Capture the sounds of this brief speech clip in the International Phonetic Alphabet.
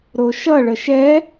ɾoʃʌɭə ʃɛ

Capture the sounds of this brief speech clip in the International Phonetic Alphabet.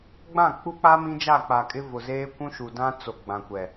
ɡ͡bã˦˨k͡pu˦k͡pa˦ mĩ˦d͡ʒa˦˨k͡pa˨kʼɪ˦ vʊ˨zeː˦kʷũ˦ ʃu˨dã˦ t͡so˨ɡ͡bã˨kʷɛ˨

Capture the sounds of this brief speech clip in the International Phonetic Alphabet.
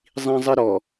zˤĩzˤɪɾɔ

